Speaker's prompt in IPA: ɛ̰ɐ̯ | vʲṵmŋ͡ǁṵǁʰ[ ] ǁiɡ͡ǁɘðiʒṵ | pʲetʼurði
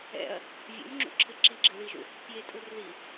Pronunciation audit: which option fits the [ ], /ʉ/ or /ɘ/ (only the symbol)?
ɘ